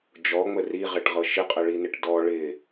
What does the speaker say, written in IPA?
d͡ʒ ɔ ŋ͡m ə r i ʁ e ʈ ʁ ɤ ʃ ɪ qʼ ə ɭ i n ɪ ʈ d ɔ ɭ ɪ

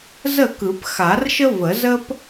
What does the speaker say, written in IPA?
z ə˥˩ k ɯ˨˩˦ p x a˨˩˦ r ʃ ə˦ v ə˨˩˦ z ə˦ p

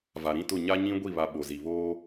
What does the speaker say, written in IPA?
v a˨ ɾ ĩ˦ t ʊ˦˨ ɲ a˦ ɲ ĩ˦ ɡʷ i˦˨ β a˨ ɓ o˨ z i˨ β oː˦

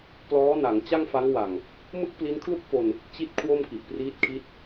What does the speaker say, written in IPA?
p l ɔː˦˥ n a˩˦ ŋ t͡ɕ a˥˩ ŋ f a˦˥ ŋ w a˨˩ ŋ | m ɯ˥˩ k̚ p l i˦˥ n kʰ l u˥˩ k̚ f o˧ n | t͡ɕ i˥˩ t̚ kʰ w o˥˩ m k i˨˩ ʔ p r iː˦˥ t̚ kʰ i˦˥ t̚

